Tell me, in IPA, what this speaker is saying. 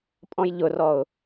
pʼ ɔ̃ j ʎ ʊ r ɔ ʊ̯

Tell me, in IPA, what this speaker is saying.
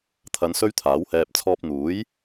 t̪ʰ ɐ˨˧ n s ɵ˥ ɥ t̪ʰ aː˨˥ w h ɛː˧ p̚ t͡sʰ ɔː˧ p̚ n̪ uː˨˥ j

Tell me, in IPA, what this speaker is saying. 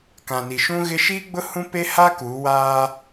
k ã˨ n i˨ ʃ ũ˦ ɣ ɪ˦ ʃ iː˦ ɡ͡b ʊ˦ h ũ˦ p e˦ h a˦ k uː˨˦ w aː˦

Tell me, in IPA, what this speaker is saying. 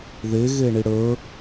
ð e ɣ e ɳ i ɽ ə˞

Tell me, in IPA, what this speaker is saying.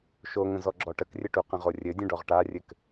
ʃ o ŋ ə̃ z ɔ ɡ͡ǁ ɔ ʈ ə k rʲ ɘ ʈ u q ə̃ ʁ o rʲ ɘ dʲ ə̃ ɖ ɔ ʁ ʈ a rʲ ɘ k

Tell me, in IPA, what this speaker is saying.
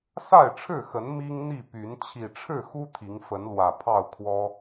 s a˥˨ ɪ̯ ʈ͡ʂʰ ɻ̩˥˨ x ə˨˦ n m i˦ ŋ n̪ i˥˨ p y˨˦ n t͡ɕʰ i˨˩ ʈ͡ʂʰ ɻ̩˥˨ x u˦ t̪ʰ i˨˦ ŋ f ə˨˦ n l w ä˨˩ pʰ ɑ˥˨ ʊ̯ kʰ w ɔ˦

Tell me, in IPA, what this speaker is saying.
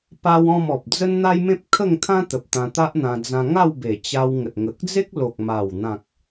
p a˦ w ɔ̃˥˧ m ɔ˨ p̚ d͡z ə˦ n n̪ a˦ j m ẽ˦ p̚ kʰ ə˥˧ ŋ t̪ʰ ã˦ t̪ ə˨ p̚ t̪ ã˧ t̪ a˦ ʔ n̪ ã˧ d͡z ã˧ ŋ a˥˧ w b e˨˩ t͡ɕ a˧ w ŋ ə˨ t̚ ŋ ə˨ k̚ d͡z e˦ k̚ l o˨ k̚ m a˨˩ w n̪ ã˨ k̚

